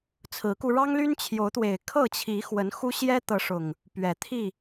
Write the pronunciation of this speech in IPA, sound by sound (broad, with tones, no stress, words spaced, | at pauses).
t͡sʰɹ̩˨˦ku˧ ɻɑ˦ŋly˦n t͡ɕʰjo˨˦ʊ̯t̪we˨˩ɪ̯ kʰɤ˥˨t͡ɕʰi˨˦ xwə˨˦nxu˦ ɕjɛ˦t̪ɤ˨˦ ʂʊ˨˩ŋ | pɥɛ˨˩t̪ʰi˥˨